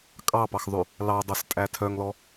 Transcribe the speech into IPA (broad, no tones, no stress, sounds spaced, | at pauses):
kʼ ɑ p ɑ x ðˤ ʉ | l ɑ dˤ o s tʼ æ tʰ œ ŋ l ɔ